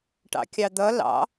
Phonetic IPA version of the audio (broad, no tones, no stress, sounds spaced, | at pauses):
ʈ ɑ̰ kʲ ɑ d̪ ʌ l ɑ̰